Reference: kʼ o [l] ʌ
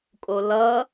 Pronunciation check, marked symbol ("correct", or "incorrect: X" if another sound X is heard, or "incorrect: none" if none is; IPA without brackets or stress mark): correct